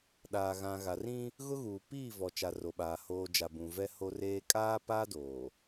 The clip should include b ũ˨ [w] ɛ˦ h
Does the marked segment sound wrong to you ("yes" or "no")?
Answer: yes